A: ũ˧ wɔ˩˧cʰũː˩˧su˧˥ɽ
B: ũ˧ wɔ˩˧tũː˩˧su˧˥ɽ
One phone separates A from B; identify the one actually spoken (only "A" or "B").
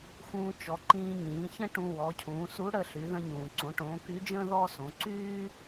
A